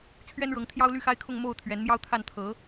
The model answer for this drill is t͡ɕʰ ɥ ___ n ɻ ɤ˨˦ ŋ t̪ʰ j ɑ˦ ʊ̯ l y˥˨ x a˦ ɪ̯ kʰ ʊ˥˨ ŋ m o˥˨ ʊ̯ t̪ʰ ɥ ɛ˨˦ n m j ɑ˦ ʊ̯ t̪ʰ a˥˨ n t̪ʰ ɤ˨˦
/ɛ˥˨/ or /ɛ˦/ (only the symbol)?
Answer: ɛ˦